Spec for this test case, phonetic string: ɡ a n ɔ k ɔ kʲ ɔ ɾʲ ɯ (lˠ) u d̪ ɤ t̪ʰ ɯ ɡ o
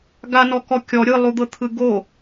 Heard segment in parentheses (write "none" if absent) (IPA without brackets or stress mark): lˠ